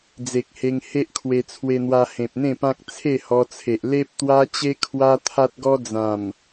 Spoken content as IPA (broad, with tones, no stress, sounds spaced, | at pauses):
d͡z e˨ k̚ h e˧ ŋ h e˦ ʔ kʰ w e˧ t͡sʰ w e˧ n̪ w a˧ h ẽ˨ p̚ n̪ ẽ˥˧ p ã˦ k̚ t͡sʰ e˥˧ h ɔ˧ t͡sʰ e˨ ʔ l e˦ p̚ t̪ w a˦ t͡ɕ e˦ kʰ w a˦ t̪ʰ a˦ t̚ ɡ ɔ˦ d͡z ã˨˩ m